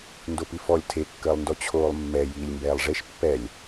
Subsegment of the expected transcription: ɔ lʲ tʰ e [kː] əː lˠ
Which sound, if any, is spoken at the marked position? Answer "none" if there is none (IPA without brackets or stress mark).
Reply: kː